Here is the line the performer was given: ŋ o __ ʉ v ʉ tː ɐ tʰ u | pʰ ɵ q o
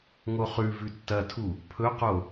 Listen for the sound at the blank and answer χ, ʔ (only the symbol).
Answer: χ